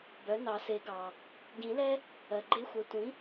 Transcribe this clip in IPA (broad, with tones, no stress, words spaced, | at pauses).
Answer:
bœ˩˥nɑ˨˩˦se˨˩˦ɡɑ˩ | ɟĩ˨˩˦lɛ˥ | ɜ˩ɡ͡ǃe˧˥xʷœ˩˥ tʷĩ˩˥